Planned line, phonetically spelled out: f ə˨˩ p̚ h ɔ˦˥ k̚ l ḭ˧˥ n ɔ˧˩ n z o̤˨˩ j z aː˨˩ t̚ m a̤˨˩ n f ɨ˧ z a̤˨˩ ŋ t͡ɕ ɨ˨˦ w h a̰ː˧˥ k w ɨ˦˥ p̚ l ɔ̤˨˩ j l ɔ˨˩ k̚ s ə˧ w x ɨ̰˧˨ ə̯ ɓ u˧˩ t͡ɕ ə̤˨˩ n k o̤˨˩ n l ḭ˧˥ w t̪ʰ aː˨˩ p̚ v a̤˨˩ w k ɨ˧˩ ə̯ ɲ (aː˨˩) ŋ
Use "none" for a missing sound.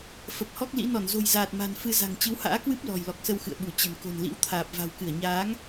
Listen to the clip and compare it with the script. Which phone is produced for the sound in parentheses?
aː˨˦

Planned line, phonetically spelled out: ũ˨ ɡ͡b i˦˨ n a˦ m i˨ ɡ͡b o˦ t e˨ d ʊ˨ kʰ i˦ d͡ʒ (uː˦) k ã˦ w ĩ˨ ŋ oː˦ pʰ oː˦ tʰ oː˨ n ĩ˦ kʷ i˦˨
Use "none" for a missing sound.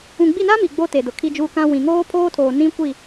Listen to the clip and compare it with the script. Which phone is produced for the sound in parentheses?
uː˦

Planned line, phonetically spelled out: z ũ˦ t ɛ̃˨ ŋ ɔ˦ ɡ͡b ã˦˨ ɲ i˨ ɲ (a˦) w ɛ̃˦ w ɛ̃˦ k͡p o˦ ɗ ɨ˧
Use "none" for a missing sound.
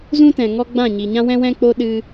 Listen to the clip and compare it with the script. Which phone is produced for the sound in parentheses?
ã˦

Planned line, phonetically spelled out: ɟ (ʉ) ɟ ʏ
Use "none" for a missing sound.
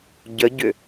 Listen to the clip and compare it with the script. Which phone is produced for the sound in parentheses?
ə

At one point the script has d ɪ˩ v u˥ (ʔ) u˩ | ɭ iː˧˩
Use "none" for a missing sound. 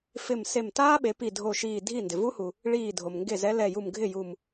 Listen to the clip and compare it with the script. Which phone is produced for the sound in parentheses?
h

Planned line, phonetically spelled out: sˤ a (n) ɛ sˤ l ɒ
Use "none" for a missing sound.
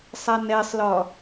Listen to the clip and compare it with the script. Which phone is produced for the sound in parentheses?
n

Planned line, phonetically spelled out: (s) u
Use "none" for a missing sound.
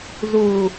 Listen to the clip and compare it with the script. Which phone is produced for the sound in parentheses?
z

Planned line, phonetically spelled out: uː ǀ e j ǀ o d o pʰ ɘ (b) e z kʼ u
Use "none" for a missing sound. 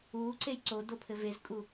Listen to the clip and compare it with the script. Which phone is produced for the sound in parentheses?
v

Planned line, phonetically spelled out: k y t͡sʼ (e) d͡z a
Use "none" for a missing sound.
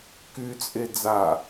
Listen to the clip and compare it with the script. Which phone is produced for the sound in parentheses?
e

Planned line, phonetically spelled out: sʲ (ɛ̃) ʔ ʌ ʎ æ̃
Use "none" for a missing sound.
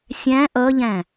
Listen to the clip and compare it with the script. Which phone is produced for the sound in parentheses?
æ̃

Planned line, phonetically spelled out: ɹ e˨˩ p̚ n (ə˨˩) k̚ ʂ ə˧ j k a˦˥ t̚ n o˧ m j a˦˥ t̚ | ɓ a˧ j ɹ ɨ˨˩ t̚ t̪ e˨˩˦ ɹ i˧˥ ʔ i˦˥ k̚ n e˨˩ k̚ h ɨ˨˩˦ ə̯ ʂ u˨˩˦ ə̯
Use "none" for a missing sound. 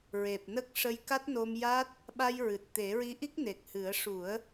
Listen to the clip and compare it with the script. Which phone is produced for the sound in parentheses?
ə˦˥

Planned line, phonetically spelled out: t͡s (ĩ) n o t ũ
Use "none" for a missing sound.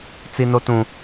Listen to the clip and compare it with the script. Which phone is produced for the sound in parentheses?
i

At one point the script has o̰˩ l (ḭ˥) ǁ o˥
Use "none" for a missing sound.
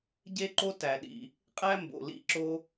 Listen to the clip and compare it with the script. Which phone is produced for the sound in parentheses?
ḭ˥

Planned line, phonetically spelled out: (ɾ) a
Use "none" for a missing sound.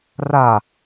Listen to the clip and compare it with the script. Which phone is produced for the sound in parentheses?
r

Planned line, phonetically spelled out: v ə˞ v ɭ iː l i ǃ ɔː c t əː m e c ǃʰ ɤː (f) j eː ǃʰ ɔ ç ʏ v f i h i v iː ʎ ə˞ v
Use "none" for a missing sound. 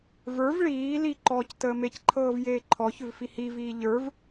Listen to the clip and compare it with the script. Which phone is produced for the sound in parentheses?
v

